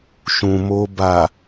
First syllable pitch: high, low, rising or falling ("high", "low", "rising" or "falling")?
low